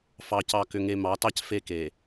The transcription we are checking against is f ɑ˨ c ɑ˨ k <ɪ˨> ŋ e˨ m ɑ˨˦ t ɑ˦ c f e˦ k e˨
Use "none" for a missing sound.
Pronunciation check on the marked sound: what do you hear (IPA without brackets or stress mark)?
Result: ʏ˨